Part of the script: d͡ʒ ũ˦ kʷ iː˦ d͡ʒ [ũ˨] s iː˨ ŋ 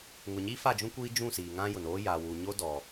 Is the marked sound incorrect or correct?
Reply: incorrect